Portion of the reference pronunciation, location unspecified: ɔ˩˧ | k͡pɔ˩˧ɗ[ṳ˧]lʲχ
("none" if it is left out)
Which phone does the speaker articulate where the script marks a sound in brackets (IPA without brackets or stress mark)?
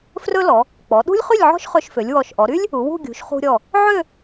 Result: ṳ˥